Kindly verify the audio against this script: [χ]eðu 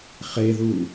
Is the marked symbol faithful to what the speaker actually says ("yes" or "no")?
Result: yes